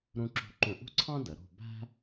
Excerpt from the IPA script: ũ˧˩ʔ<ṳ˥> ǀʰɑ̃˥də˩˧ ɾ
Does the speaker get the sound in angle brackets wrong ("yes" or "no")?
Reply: no